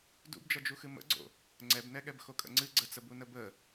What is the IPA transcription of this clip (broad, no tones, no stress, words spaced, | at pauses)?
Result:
dṵbd͡ʒʌd͡ʒuxɨ mə̰ɡ͡ǀo̰ | ŋ͡ǀɛbnɛɠɛb xokʼə̰ŋ͡ǀɨ ɡ͡ǀət͡səbunə bə